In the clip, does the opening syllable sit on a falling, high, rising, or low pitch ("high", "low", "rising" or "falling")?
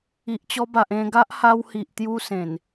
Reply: low